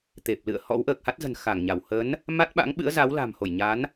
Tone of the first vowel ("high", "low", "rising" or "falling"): low